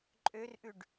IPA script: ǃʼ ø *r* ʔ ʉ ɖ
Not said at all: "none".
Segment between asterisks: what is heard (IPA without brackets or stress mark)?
r